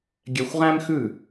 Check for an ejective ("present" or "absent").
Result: absent